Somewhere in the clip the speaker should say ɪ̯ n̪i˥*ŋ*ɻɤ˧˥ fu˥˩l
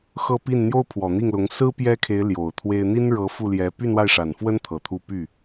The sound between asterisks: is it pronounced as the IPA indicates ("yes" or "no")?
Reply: no